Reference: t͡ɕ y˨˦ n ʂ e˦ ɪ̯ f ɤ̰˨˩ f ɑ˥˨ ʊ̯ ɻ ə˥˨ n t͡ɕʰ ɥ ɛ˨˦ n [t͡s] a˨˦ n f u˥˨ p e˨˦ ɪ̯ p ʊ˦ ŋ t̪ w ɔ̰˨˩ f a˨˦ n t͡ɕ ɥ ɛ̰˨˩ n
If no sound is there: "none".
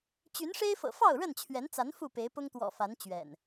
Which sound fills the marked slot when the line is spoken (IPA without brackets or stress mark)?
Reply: t͡s